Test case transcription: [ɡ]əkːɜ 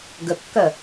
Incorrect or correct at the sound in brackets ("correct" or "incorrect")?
correct